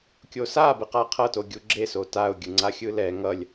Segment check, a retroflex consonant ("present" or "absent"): absent